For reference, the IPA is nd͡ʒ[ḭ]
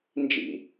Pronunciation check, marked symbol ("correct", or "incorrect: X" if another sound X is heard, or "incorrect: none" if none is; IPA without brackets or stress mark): correct